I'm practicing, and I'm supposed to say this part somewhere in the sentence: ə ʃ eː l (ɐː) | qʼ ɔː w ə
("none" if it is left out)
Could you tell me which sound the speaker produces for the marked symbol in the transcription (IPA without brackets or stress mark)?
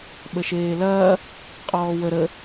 ɐː